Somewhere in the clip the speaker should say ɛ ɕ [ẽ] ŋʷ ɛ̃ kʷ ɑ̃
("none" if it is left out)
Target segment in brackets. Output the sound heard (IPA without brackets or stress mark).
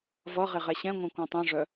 ɛ̃